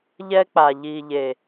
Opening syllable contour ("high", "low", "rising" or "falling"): high